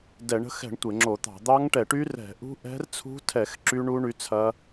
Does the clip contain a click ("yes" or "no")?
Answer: yes